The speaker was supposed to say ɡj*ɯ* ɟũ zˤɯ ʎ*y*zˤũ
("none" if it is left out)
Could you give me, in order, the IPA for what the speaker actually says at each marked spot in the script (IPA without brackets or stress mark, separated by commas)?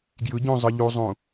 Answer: ɯ, u